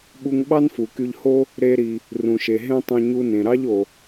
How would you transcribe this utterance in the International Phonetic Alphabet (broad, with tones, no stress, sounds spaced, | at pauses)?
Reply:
ɓ u˧ ŋ ɓ ɑ˥ n f u˩ k y˧ ʎ h o˥ | ɾ e˧ ɾ i˩ | r ũ˩ ʃ e˩ ɦ ẽ˥ tˤ ũ˧ ɲ u˧ n ẽ˩ ɾ ɑ˥ ʎ o˩